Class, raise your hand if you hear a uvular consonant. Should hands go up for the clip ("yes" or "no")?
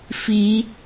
no